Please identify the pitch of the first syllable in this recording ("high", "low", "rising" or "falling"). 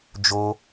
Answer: high